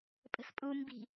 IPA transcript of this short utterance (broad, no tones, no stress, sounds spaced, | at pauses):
pʼ ə̤ s pʼ u m b i̤